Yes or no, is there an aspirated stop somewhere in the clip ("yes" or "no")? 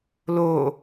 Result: no